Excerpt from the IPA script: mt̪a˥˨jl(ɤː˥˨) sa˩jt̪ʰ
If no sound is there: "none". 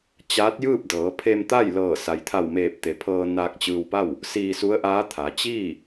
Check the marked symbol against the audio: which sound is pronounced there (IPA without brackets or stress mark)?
ɤː˧˩